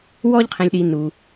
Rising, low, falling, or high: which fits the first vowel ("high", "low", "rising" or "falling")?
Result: high